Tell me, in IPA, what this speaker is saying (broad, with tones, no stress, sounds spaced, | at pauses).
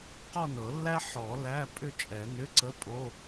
q ɔ˥˧ n ɤ˨˩˦ lː æ˥ ħ ɔ˨˩˦ l æ˧˥˧ pʼ ʏ˥˧ t͡ʃʼ ɛ˨˩˦ n ʏ˧˥˧ ǀ ə˧˥˧ pʼ o˧˥˧